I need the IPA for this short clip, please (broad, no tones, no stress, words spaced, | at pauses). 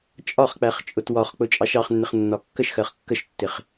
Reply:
t͡ʃʼɒχk͡pæχ t͡ʃʼʊtwɒχk͡pʊ t͡ʃʼɑʃɑχnːɪχ nːɒkːəʃxɜχ kːəʃtːɪχ